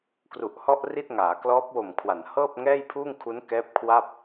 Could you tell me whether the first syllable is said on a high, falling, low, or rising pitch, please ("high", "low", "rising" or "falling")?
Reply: low